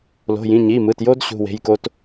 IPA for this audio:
lo̤˩˧˩jĩ˩˧˩ ɲi˩˧˩mɯ˩˧˩tjo˦d ɕṳ˩˧˩we̤˩˧˩jko˦t

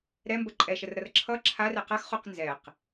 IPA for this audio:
ɾɛmbə ǃʼɛʃərɾʌr ǁʰʌ ǁʰarɛ qaxχuq nzɛq

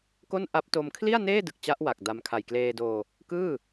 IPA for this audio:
ko˥˩n ʔa˦˥p̚to˧m kʰli˥˩a̯neː˥˩dɯ˨˩k̚ t͡ɕa˦˥ʔwa˨˩k̚ da˧m kʰa˨˩jkleː˧doː˧ | kɯː˥˩

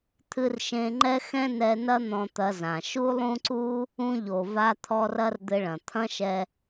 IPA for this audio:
t̪ʰɨ˧rʃẽ˧ŋ͡ǃɛ˦ xɛ̃˦nɛ˧nɐ˦ n̪ɔ̃˧t̪ɐ˧zã˨ ʃu˦lˠũ˦ǀu˦ | ũ˧ʎo˨ va˧t̪ʰɔ˧r ɐ˦rd̪ɘ˧ɭɐ̃˨ t̪ʰɐ̃˦ʃɛ˧

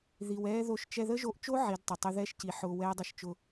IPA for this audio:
ði˧wɛː˦ ðo˧ʃt͡ʃɛ˧ ðə˦ʒo˧ʔt͡ʃo˦ ʕi˨˦dtˤə˨tˤʊ˦ ðɛ˦ʃci˨ ħʊː˧wɛː˦dˤə˦˨ʃt͡ʃʊ˧

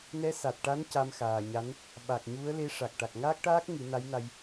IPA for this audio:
nɛ˧˥sa˨˩t̚ʈa˧˥n ca˧mxaː˨˩ɲa˧˥n | ɓa˨˩k̚ɲu˧˥ə̯ le˧˥ʂa˨˩k̚ ʈa˨˩k̚ŋaː˦˥k̚ʈaː˦˥k̚ ŋɨ˨˩˦na˧˥jna˧j

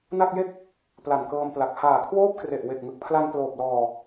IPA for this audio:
na˥˩k̚je˥˩k̚ | pla˨˩nkɤː˧mpla˨˩k̚ haː˨˩kʰwoː˥˩p̚kre˨˩ʔ we˨˩k̚ŋɯ˨˩k̚pʰla˧n ploː˨˩p̚lɔː˨˩

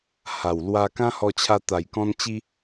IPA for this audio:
ha˨˩wlwa˧ kã˦hɔ˧t͡ɕʰa˧ t̪a˨˩jkɔ̃˧n t͡ɕi˦

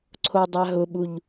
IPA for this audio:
ǀʰodˤaɦʊɓuʎ

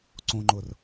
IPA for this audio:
ǀõŋ͡ǃʊr

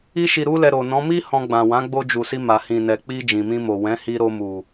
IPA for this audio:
i˧ʃi˨ɾu˧lɛ˨ ɾo˨nɔ̃˨˦ mi˦ hɔ̃˧ɡ͡bã˨ wã˨˦ɡ͡bo˧d͡ʒu˨si˧ ma˨hĩ˨nɛ˨ k͡pi˧ d͡ʒĩ˨mĩ˧mo˨ wɛ̃˨˦ hi˧ɾo˧mu˨

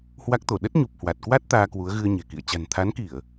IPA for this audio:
hwa˦˥k̚t̪o˧˩ ɗə˦˥t̚ɲu˨˩p̚hwa˨˩t̚ kwa˦˥t̚ t̪aː˧kwu˨˦ə̯ɣɨ˧ə̯ ɲɛ̤˨˩kḭ˧˨ə̯ t͡ɕa̤˨˩nt̪ʰa˨˦nki˧˩˨ə̯

